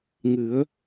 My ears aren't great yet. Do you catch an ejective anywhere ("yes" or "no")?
no